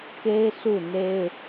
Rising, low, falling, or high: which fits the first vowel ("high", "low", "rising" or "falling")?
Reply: high